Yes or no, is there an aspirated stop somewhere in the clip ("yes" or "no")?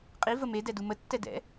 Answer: no